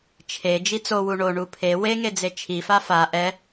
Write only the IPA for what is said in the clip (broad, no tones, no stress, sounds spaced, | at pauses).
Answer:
t͡ʃʰ e d͡ʒ i t͡s o w u ɳ o ɳ u pʰ e w e ŋ e d͡z e t͡ʃʰ i f a f a ʔ ɛ